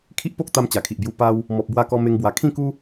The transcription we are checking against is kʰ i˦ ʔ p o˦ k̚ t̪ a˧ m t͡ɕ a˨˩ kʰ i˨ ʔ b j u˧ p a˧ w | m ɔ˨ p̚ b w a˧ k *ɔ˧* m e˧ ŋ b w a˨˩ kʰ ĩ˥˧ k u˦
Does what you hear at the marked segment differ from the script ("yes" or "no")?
no